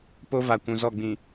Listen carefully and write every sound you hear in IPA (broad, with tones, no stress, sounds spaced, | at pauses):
p o˦ v a˨ kʷ ũ˨ z ɔ˦˨ ɡ͡b ĩ˨